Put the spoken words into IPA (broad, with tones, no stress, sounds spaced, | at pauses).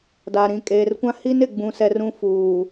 d a˨ ɾ ĩ˨ kʼ eː˨ r kʷ ã˦ h i˦ n ɪ˨ ɡ͡b ũ˨ s ɛ˨ r ũ˦ f uː˨